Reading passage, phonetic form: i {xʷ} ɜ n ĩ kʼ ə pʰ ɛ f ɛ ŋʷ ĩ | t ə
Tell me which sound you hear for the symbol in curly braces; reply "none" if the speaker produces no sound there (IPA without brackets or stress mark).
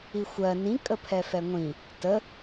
xʷ